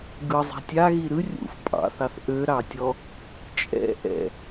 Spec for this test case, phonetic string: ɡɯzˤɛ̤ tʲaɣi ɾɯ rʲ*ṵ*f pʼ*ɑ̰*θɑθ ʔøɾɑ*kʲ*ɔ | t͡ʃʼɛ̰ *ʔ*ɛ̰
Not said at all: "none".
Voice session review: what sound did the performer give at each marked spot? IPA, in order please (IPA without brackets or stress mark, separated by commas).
ṵ, ɑ̰, tʲ, ʔ